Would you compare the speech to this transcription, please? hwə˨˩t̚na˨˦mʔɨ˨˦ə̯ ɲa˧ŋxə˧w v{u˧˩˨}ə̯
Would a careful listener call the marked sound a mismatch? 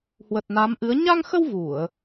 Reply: no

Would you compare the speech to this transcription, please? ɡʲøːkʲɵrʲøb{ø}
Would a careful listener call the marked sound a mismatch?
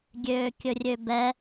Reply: yes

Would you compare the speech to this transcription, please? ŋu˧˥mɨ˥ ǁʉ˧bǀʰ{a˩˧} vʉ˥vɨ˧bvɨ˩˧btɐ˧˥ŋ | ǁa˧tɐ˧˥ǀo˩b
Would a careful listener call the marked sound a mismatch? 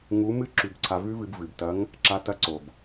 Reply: yes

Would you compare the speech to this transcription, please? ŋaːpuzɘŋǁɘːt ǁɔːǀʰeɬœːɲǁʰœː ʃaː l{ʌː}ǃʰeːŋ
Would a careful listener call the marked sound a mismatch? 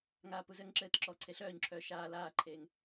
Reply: yes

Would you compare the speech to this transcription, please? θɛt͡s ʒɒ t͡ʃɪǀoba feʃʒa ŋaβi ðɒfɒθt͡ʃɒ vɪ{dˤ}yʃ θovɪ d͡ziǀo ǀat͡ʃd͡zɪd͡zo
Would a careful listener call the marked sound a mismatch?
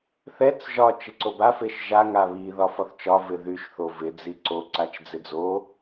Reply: yes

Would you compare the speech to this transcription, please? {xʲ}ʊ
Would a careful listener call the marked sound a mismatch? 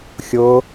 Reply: no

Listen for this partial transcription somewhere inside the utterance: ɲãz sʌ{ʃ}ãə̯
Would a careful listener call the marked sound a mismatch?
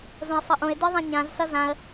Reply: yes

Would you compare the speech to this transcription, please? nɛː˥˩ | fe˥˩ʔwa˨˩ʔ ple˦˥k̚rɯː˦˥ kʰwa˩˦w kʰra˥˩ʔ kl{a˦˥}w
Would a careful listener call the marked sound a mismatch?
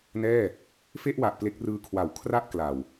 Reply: yes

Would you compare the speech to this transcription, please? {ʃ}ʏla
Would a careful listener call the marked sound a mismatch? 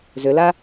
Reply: yes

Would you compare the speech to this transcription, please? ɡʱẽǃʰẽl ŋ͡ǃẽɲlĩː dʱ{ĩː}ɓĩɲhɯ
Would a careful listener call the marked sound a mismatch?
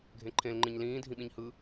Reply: yes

